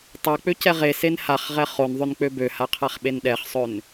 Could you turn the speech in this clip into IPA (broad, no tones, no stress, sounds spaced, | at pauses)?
tˤ a k͡p ø c ɛ ʁ e s e n h a χ ʁ ɛ χ o n ðˤ ø n k͡p ø b ø h a qʰ a χ ɓ e n ɗ ɛ χ sˤ ø n